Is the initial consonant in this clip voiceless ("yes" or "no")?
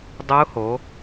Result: no